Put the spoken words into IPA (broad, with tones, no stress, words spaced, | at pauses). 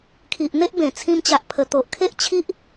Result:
kʰi˨ʔn̪e˦ʔbẽ˨˩ t͡sʰĩ˧mt͡ɕa˨ʔ pʰə˨˩ t̪o˨ʔkʰe˦ʔt͡ɕʰi˦ʔ